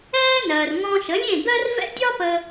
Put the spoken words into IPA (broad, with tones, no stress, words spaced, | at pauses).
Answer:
ɛː˥ nɜː˩rŋɔ̃˧ ʃə˩˥lʲẽ˥˩ɡɜ˥rvɛ̰˥ dʲɒ˥pə˧